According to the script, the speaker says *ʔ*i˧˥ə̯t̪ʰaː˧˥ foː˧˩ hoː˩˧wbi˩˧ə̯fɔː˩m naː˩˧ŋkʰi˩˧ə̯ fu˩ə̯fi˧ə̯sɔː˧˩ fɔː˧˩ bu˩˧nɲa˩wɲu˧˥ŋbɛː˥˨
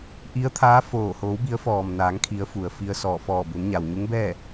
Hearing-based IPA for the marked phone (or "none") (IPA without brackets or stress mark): ʔ